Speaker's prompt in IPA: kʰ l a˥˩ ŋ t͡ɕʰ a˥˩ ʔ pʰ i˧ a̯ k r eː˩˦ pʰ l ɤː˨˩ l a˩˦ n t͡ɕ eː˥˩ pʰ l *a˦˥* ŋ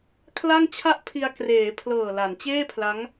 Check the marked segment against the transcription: correct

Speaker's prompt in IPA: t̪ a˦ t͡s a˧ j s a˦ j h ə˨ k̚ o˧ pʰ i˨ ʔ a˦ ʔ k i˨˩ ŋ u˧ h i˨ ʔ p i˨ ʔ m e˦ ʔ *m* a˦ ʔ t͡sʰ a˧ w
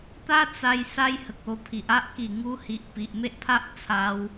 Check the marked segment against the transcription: incorrect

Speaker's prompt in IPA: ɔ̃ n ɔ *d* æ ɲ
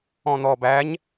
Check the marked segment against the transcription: incorrect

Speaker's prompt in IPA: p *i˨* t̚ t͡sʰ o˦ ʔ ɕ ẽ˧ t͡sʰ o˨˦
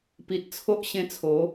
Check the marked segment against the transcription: correct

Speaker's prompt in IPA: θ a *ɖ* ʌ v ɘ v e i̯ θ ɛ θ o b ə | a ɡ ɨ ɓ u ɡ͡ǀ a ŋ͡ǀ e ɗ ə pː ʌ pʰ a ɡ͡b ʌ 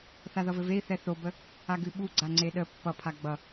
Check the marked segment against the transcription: incorrect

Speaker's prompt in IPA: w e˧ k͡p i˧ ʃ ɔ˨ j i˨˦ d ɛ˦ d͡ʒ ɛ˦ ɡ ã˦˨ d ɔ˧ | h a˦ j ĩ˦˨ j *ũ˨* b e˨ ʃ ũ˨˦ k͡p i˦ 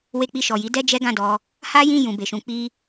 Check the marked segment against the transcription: correct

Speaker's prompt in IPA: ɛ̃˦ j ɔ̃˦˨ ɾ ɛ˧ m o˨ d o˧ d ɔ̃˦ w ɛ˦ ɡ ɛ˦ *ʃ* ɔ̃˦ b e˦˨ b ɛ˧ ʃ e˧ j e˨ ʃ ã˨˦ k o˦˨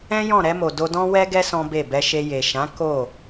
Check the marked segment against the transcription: incorrect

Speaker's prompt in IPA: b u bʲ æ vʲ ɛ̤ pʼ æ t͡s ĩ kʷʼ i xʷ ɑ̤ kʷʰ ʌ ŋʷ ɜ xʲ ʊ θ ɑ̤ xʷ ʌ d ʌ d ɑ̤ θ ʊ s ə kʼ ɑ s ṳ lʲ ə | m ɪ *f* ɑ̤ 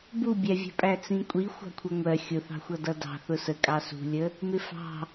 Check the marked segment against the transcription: correct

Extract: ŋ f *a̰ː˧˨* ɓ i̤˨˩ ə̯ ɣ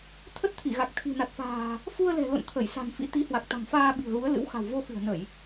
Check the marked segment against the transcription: incorrect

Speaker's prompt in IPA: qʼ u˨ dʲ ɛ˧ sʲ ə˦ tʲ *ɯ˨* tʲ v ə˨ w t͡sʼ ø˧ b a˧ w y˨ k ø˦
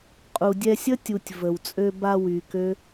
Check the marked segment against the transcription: incorrect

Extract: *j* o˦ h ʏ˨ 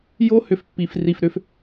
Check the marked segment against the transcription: correct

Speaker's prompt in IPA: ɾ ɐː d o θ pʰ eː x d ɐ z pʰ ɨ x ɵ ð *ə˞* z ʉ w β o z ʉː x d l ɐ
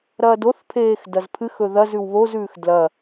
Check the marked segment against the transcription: incorrect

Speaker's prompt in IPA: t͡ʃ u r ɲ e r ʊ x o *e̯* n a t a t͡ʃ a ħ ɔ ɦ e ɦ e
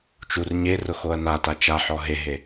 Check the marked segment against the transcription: incorrect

